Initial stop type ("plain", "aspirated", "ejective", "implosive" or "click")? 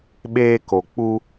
implosive